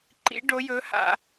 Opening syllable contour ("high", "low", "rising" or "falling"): rising